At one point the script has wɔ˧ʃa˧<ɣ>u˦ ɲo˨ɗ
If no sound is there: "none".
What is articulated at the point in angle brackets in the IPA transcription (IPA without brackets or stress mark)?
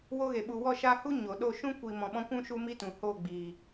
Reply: h